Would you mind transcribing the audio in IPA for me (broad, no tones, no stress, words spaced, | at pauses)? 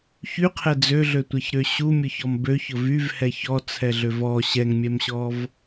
çyqʰɛ d͡zøɮøtʷɛçɾø ɕumʲʊçɔm bøçʊ vyvhɛ çɔt͡sʰɛɮøv ɔ ɕɛŋmʲɛmɕɔv